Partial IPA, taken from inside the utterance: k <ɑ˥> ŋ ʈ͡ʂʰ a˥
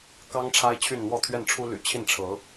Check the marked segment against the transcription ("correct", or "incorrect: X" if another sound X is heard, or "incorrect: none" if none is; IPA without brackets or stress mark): correct